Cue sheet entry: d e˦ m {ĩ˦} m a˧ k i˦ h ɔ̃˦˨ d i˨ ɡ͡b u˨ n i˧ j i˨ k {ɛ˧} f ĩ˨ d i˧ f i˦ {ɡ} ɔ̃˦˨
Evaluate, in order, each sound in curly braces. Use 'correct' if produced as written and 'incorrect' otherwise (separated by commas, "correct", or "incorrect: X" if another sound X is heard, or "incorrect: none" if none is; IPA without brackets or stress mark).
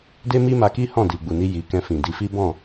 incorrect: i˦, incorrect: ɛ̃˧, incorrect: b